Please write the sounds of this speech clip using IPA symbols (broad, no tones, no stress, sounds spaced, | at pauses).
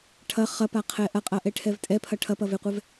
ʈʰ ɐ χ ɐ p a qʰ ɛ ʔ ɐ qʼ ɐ ʔ ɛ ʈʰ ɛ v tʼ ɛ pʰ ɐ ʈʰ ɐ p ɐ v e qʷ ɛ v